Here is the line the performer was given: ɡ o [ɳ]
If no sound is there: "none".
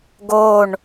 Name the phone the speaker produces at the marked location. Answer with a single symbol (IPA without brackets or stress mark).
ɳ